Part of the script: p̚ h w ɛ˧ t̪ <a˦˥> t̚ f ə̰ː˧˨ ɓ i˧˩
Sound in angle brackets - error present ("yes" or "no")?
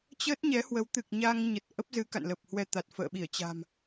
yes